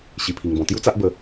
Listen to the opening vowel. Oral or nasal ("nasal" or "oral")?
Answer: oral